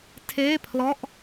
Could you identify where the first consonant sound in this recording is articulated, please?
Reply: alveolar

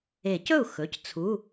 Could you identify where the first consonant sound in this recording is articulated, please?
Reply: palatal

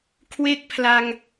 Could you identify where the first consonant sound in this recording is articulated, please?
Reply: velar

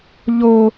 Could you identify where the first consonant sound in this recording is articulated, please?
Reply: palatal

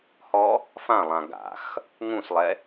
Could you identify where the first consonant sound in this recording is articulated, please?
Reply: glottal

